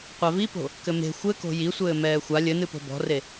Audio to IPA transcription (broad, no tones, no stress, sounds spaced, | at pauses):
qʷ a v i p o̤ | k ɘ m e̤ xʷ ɘ k o̤ j i sʷ ɘː m ɛː xʷ a lʲ ɘ n ɨ p o̤ b ɔ̤ r e